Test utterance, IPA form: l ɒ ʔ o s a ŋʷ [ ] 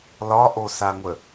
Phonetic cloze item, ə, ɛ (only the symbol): ə